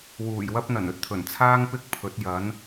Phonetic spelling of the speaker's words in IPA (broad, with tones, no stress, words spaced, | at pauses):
wuː˨˩jwɐ˥p̚n̪ɐ˨˩n ɵ˨t̚t̪ʰɵ˨˩nt͡sʰaː˥ŋ pɪ˥k̚pʰɵ˨˥t̚jɐ˨˥n